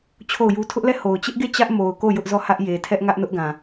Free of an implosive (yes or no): yes